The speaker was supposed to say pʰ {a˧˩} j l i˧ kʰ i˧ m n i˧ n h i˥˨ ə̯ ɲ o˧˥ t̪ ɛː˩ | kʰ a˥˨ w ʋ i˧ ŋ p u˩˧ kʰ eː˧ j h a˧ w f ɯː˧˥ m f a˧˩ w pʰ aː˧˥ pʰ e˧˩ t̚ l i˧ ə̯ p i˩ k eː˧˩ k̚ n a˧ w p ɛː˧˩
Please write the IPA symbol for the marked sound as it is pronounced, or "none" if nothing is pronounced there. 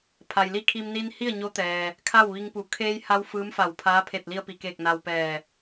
a˩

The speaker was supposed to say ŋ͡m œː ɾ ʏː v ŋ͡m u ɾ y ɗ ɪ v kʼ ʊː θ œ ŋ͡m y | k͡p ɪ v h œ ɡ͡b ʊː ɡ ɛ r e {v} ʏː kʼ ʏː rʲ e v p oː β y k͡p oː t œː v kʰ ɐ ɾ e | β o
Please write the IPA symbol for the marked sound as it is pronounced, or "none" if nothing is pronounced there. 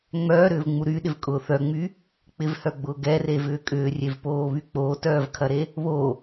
v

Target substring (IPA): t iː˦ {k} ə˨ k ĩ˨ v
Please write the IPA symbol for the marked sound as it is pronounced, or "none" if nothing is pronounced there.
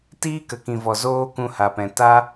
k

